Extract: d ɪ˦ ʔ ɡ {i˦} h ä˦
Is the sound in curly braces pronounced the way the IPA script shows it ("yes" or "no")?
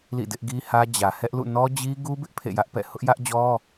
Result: yes